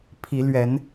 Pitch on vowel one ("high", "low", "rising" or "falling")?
rising